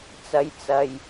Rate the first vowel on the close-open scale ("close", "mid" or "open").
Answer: open